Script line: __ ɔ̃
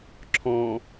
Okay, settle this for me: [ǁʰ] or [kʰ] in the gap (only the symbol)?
ǁʰ